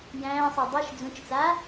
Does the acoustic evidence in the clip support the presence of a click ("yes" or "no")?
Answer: no